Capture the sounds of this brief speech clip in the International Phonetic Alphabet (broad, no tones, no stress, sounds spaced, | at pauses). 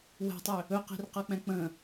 w ɛ̤ tˤ ø | ɵ q i̤ r q ɤ k͡p ɛ̃ k͡p ə̃